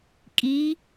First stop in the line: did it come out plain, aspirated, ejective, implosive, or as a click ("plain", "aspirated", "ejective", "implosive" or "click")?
ejective